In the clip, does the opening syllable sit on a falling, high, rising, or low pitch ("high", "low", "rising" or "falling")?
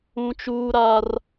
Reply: high